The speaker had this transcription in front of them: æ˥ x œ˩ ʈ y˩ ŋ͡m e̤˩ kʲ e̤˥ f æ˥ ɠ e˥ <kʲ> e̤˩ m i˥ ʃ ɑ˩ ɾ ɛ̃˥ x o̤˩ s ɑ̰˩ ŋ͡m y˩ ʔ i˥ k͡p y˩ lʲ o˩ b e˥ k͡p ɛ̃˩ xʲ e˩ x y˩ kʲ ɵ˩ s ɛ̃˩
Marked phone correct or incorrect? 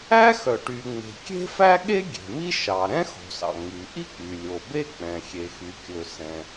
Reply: incorrect